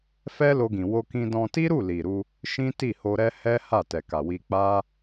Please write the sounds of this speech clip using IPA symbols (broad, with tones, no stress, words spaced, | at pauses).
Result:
fɛ˦lo˧ɡĩ˨ wo˧kĩ˧dɔ̃˧ ti˦ɾu˦˨ li˨ɾu˧ | ʃĩ˦ti˦˨ho˧ɾɛ˦ hɛ˦ ha˦˨tɛ˨ka˨wi˧ k͡pa˦